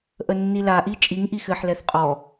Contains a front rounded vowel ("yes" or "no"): no